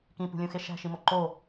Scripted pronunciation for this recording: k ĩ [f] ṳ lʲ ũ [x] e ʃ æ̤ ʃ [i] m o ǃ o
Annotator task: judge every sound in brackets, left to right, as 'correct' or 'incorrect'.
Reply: incorrect: p, correct, correct

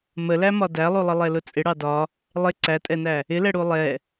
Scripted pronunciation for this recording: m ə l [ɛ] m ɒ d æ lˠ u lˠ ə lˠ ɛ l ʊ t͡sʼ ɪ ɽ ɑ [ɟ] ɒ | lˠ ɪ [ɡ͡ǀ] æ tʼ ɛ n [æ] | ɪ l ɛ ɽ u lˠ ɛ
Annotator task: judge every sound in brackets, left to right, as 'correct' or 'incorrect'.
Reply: incorrect: æ, incorrect: d, incorrect: ǀ, correct

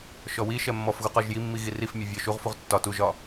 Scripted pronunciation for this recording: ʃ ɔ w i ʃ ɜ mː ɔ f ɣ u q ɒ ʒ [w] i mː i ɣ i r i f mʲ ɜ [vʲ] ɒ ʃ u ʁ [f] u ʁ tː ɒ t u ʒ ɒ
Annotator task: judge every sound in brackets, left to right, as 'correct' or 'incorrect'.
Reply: incorrect: j, correct, correct

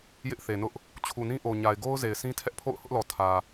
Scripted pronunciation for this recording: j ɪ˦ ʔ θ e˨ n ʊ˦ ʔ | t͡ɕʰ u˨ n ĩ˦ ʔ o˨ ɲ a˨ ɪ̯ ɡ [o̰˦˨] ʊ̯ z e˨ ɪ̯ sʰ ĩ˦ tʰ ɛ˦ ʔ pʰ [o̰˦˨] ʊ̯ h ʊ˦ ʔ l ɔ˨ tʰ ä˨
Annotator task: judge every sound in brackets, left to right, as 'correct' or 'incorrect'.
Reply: incorrect: o˦, correct

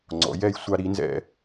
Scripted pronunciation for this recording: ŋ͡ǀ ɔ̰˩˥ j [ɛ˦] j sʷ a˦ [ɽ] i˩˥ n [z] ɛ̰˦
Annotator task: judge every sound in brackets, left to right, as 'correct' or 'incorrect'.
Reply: correct, incorrect: ɾ, correct

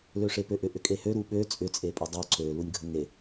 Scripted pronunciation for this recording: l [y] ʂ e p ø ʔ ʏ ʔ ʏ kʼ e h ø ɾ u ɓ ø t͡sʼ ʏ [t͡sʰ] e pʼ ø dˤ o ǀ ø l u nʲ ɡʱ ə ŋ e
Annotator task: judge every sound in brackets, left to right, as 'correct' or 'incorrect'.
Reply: incorrect: ø, incorrect: t͡sʼ

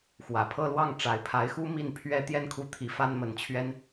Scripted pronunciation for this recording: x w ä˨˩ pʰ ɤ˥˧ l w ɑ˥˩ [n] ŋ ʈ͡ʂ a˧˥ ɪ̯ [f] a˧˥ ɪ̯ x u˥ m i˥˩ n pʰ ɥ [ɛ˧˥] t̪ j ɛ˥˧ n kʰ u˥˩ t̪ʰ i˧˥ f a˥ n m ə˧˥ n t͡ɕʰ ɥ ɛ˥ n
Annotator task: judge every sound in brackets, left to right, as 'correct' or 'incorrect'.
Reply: incorrect: none, incorrect: pʰ, incorrect: ɛ˥

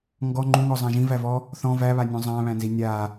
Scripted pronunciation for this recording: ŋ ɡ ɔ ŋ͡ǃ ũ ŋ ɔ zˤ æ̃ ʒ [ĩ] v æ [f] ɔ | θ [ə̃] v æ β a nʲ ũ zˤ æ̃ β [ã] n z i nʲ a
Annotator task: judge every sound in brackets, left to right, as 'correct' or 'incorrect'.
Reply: correct, incorrect: v, incorrect: ɔ̃, incorrect: æ̃

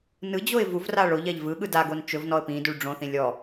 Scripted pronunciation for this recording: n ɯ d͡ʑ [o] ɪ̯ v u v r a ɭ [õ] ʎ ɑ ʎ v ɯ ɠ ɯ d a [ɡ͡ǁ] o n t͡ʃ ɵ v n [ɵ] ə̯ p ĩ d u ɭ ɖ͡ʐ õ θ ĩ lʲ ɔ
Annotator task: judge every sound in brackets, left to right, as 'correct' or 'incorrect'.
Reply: correct, incorrect: o, incorrect: ɡ, incorrect: ɔ

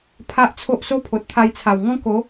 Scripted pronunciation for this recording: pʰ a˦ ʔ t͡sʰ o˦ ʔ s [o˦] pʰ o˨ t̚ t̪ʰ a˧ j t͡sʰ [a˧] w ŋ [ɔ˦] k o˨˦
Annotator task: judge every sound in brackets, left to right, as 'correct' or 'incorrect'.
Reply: correct, incorrect: a˨˩, incorrect: ɔ̃˦

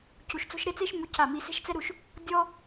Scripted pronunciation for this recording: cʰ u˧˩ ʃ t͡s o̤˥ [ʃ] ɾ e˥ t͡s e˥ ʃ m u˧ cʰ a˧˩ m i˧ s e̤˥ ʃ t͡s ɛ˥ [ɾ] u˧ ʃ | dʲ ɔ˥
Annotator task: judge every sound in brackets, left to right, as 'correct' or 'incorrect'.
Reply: correct, correct

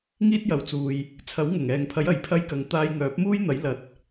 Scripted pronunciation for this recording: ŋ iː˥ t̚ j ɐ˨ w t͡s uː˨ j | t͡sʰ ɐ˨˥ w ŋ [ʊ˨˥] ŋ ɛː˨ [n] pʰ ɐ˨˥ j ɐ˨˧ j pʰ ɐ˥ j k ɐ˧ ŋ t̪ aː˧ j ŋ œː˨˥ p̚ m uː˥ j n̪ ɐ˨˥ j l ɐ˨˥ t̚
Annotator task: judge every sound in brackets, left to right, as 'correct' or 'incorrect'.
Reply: incorrect: ʊ˨˩, incorrect: ŋ

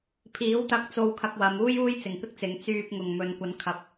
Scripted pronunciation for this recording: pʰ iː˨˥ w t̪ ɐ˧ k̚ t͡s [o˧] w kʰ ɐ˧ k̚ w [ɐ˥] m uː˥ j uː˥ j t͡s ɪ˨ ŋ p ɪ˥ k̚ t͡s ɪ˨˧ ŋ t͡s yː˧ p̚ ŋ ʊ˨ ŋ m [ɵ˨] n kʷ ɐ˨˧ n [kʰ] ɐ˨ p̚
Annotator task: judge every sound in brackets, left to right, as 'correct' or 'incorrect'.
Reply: correct, incorrect: ɐ˨˧, correct, correct

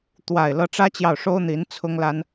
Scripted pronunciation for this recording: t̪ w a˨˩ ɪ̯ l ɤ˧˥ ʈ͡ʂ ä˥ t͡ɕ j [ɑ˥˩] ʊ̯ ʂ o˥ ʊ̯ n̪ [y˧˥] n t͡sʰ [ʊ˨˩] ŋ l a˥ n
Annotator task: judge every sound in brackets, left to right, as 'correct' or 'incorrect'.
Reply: correct, incorrect: i˧˥, incorrect: ʊ˥

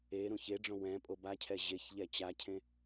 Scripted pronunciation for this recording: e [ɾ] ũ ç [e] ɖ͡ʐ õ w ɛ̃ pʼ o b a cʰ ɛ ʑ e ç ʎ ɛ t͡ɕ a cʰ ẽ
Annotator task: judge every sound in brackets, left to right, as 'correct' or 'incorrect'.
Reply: correct, correct

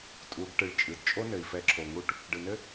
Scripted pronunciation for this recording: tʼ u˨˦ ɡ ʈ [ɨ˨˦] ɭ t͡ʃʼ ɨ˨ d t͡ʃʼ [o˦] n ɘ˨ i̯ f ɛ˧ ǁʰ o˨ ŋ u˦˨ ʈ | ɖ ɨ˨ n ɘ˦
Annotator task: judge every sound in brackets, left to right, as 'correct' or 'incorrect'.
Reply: correct, correct

